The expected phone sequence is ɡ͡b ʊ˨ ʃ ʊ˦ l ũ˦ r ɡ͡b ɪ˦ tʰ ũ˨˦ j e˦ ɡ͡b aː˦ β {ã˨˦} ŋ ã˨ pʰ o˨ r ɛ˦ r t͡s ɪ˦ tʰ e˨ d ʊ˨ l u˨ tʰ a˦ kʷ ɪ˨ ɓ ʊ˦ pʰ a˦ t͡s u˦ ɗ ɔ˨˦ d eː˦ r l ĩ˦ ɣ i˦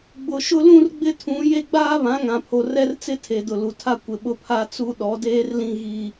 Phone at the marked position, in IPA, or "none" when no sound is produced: ã˨˦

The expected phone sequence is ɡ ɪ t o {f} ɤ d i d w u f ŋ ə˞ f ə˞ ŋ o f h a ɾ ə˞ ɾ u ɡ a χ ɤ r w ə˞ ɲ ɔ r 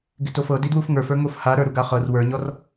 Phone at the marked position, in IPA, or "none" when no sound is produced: f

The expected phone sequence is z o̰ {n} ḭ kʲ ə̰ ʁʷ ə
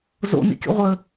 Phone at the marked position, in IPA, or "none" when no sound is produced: n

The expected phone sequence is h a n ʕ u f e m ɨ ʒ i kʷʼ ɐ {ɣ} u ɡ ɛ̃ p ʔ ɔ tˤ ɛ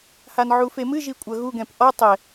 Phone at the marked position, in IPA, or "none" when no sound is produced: ɣ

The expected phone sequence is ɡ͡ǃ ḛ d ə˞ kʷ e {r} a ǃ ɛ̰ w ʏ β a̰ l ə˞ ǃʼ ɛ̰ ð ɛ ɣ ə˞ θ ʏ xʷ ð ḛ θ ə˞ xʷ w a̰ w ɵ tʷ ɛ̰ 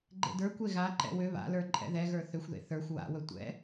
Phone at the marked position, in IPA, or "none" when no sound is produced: ɣ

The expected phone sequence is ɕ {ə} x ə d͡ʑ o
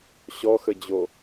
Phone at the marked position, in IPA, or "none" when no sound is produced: ɔ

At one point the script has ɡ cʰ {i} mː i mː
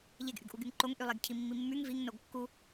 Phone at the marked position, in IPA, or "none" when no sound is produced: i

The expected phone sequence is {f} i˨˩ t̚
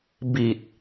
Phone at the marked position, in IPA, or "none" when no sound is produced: b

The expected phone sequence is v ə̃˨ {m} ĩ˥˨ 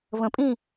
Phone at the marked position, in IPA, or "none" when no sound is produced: pʼ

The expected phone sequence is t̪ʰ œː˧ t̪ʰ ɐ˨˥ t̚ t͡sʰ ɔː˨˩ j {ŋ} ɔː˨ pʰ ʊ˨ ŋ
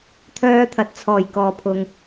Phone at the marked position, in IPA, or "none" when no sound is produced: k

